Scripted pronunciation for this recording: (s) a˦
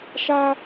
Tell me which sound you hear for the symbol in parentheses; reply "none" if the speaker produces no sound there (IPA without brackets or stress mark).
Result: ʃ